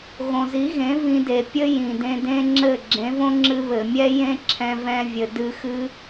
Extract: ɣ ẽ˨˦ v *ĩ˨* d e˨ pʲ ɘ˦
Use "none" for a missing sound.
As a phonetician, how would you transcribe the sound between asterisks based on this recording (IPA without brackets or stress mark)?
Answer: ĩ˧